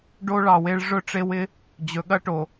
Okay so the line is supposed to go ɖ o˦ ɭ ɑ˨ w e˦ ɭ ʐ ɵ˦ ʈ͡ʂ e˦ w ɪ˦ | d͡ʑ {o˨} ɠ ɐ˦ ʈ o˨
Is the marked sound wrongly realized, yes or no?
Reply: yes